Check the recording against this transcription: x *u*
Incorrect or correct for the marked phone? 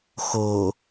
incorrect: o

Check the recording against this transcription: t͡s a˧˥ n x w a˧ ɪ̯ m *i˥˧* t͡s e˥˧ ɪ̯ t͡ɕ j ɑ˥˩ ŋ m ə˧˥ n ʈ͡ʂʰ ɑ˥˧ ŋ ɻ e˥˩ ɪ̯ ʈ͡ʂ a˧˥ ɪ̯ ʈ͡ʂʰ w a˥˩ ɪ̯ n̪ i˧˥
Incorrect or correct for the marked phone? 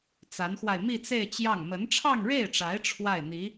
correct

